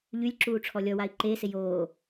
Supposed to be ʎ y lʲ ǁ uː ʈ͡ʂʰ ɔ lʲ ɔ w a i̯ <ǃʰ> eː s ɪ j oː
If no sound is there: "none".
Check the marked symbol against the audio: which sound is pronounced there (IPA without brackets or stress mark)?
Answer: ǃ